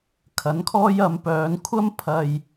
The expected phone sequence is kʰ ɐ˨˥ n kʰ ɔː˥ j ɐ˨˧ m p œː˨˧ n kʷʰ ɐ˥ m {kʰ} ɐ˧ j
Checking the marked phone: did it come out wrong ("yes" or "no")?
yes